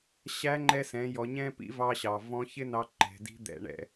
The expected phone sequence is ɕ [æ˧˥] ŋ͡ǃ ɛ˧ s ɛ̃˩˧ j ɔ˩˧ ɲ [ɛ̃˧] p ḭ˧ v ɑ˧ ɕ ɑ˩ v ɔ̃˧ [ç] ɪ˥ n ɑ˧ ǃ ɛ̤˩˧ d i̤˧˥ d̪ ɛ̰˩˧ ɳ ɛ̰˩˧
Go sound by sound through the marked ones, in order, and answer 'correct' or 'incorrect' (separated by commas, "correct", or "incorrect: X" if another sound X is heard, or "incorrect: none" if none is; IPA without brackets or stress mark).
correct, correct, correct